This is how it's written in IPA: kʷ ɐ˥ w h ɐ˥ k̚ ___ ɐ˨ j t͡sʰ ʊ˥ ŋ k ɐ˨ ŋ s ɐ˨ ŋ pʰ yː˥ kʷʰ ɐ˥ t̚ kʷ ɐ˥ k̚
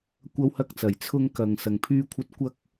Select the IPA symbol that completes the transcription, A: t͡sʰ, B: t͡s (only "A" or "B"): B